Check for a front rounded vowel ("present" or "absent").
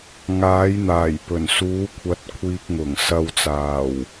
absent